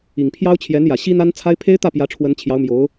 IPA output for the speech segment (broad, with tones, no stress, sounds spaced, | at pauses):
i˨˩ ŋ pʰ j ɑ˥ ʊ̯ t͡ɕʰ j ɛ˧˥ n j ä˨˩ ɕ i˥ n̪ a˥ n t͡sʰ a˥ ɪ̯ pʰ e˥ ɪ̯ t̪ ä˥˩ p j ä˧˥ ʈ͡ʂʰ w ə˧˥ n t͡ɕʰ j ɑ˧˥ ʊ̯ m j o˧˥ ʊ̯